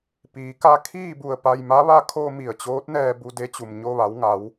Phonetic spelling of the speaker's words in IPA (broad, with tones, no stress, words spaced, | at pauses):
piː˩˧ka˧kʰiː˥˨bu˧˩ə̯ pa˧jma˧˥ʋa˥˨ kʰo˧ mi˧˩ə̯t͡ɕoː˧˥t̚nɛː˧ bu˧de˧˥t͡ɕu˩m ɲo˧ʋa˩˧wŋa˩˧w